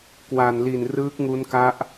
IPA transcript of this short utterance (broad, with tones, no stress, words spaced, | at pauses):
kwa˨˩nli˨˩n rɯː˦˥k̚ŋu˦˥nka˦˥ʔ